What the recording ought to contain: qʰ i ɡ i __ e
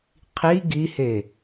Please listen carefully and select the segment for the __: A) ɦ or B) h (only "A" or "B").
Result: B